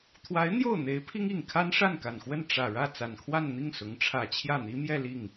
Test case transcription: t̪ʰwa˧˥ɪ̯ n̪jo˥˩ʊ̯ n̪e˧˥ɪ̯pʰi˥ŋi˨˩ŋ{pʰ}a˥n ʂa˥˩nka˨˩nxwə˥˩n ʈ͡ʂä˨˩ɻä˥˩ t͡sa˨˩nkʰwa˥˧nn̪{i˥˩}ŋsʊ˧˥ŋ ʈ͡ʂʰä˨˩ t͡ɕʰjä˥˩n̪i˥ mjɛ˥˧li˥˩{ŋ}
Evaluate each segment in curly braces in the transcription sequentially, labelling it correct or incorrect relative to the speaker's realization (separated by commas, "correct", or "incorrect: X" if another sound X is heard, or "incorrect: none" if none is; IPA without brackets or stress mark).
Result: incorrect: kʰ, correct, correct